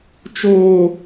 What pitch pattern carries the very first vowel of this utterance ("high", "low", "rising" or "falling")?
high